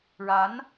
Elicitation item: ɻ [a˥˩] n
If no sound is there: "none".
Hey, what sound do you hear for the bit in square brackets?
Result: a˧˥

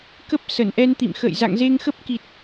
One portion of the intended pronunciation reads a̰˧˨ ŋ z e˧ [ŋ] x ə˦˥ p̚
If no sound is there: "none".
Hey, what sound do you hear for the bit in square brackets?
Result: ŋ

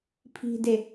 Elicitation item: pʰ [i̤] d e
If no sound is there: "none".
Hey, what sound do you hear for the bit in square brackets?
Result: i̤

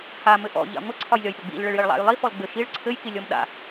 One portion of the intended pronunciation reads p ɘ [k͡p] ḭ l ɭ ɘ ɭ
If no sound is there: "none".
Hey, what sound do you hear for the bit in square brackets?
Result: ɡ͡b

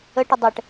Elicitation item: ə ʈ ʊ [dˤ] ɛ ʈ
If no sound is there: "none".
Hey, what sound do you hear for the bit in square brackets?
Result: dˤ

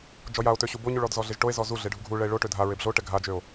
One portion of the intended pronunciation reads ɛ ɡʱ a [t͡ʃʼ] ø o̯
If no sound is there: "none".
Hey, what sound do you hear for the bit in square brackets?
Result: d͡ʒ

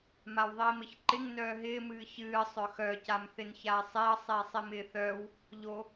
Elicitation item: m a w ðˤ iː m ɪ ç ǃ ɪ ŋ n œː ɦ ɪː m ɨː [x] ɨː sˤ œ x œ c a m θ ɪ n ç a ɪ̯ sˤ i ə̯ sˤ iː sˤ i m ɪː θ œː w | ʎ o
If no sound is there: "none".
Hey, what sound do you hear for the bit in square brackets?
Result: ç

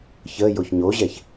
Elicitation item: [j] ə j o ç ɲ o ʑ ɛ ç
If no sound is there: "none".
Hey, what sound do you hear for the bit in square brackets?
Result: ç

